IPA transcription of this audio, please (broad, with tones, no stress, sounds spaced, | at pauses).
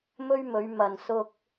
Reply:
m ɵ˥ ɥ m ɵ˨˧ ɥ m ɐ˨ n s ʊ˧ k̚